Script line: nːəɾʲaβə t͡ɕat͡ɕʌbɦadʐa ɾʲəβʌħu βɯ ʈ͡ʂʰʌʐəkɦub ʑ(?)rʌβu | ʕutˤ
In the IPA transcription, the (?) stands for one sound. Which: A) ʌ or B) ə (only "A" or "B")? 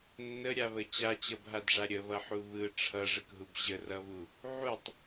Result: B